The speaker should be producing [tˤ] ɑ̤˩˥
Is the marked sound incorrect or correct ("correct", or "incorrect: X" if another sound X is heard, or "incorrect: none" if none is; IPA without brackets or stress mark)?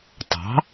correct